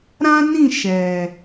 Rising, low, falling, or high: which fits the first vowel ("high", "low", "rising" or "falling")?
high